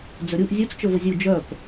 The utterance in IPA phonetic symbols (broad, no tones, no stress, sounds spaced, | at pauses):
d͡z ɵ ɾʲ u ʔ zʲ u t͡s t͡ʃ ɵ v ə zʲ u d͡ʒ œ p